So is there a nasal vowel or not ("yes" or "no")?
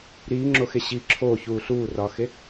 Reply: no